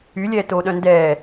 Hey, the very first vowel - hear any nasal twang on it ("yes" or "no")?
no